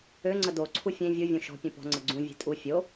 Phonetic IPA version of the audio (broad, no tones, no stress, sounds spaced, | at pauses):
ø ŋ͡ǀ ə d o ǀʰ u fʲ ẽ vʲ u vʲ õ ʃ ɔ̤ pʲ ũ p ɔ̤ ŋ͡ǀ ə ɡ͡ǀ ũ vʲ e̤ tʼ u fʲ o